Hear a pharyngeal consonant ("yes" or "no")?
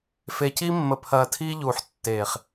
yes